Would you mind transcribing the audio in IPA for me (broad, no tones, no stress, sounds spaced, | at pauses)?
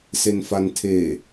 s e n f a n tʰ e